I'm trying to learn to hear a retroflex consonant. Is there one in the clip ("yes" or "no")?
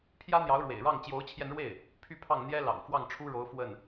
yes